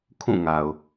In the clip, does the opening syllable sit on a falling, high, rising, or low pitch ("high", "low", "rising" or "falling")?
falling